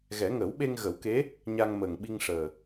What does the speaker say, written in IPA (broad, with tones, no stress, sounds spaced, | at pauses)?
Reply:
ɣ ɛ˨˩˦ ŋ əː˨˩˦ w ɓ e˧ ŋ ɣ ə˨˩˦ w k e˧˥ | ɲ a˧ ŋ m əː˨˩ ŋ ɓ i˧ ŋ ʂ əː˨˩